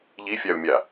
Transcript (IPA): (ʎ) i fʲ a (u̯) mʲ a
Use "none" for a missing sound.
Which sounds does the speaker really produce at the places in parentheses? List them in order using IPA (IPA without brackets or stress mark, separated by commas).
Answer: ʎ, u̯